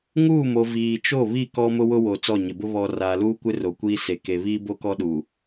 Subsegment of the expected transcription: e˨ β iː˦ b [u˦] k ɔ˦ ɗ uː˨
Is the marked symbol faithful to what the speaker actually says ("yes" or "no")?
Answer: no